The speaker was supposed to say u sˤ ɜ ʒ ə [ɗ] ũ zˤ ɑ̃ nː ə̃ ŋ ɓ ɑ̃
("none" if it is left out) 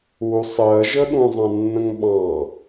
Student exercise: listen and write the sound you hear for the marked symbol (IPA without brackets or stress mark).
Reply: ɗ